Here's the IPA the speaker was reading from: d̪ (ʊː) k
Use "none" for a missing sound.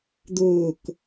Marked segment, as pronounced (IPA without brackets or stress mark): ʊː